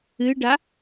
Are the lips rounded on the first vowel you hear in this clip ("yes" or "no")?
no